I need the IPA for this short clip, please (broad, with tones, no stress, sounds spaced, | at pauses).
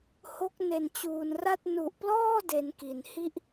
h o˦˥ k̚ n e˨˩ n t͡ɕ uː˨˩ n r a˥˩ t̚ n u˨˩ ʔ p l ɔː˥˩ d e˧ n k i˨˩ n h i˥˩ ʔ